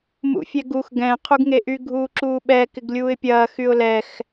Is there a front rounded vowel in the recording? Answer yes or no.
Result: yes